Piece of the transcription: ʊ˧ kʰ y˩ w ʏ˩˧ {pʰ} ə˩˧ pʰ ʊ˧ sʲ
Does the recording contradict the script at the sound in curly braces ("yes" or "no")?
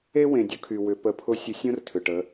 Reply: yes